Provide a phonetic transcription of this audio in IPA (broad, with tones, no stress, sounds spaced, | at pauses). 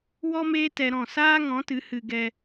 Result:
w ɔ˦ m eː˦ t ɛ˧ ɾ ɔ̃˦˨ s aː˦ ŋ ɔ̃˨˦ t ɨ˨˦ h ɨ˧ ɡ ɛ˧